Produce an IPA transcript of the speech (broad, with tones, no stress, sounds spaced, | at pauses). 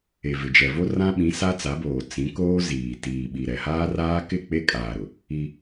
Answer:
e˨ v ɪ˨ d͡ʒ ɛ˨ v o˦ r ã˦ ɓ ĩ˨˦ s a˦ t͡s a˨˦ b oː˨ t͡s ĩ˨˦ k oː˦ z iː˨ t iː˨ ɓ i˨ ɾ ɛ˨ h aː˦ r aː˦ k ɪ˦˨ k͡p e˦ kʼ aː˨ ɾ ʊ˨ | i˦